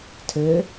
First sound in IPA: tʰ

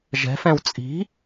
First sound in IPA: ʒ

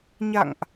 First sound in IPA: ɲ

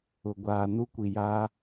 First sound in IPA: ʊ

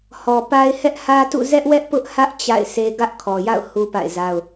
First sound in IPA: h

